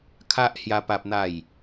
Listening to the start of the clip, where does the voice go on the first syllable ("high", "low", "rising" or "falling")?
high